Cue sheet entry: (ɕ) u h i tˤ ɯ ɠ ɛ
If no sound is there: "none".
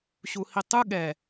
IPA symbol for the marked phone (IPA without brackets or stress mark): ɕ